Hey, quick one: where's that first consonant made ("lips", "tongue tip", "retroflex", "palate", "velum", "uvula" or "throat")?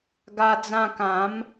velum